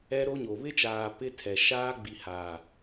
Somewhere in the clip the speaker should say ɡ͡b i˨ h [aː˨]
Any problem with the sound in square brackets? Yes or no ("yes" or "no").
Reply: no